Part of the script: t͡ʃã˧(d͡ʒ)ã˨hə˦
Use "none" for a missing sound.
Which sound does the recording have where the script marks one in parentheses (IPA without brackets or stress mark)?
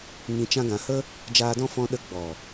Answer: ɡ